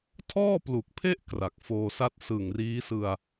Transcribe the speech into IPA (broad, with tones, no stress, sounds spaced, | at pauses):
tʰ ɔː˥˩ p l u˨˩ k̚ pʰ e˥˩ ʔ k r a˨˩ k̚ f oː˧ s a˥˩ t̚ s ɯ˨˩ ŋ r iː˦˥ s ɯ˧ a̯